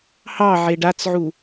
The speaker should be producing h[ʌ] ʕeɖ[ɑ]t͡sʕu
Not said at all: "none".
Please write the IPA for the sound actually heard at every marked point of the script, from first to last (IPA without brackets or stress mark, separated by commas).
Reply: ɑ, a